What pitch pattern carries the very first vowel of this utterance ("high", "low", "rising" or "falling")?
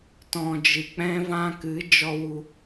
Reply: low